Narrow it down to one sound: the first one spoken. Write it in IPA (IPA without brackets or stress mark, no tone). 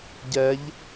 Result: ɟ